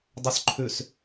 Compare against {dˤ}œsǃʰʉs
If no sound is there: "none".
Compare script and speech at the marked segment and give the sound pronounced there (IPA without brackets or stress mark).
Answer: dˤ